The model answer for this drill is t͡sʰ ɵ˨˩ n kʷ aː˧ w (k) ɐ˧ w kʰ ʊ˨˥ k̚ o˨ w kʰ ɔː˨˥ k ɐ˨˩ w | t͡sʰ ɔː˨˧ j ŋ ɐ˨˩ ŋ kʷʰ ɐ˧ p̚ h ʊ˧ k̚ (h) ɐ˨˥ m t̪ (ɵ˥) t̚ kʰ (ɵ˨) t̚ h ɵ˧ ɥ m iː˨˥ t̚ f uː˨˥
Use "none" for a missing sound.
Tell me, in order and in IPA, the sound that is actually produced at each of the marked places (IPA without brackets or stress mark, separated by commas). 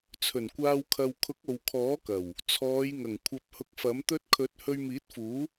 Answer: kʰ, f, ɵ˥, ɵ˨˥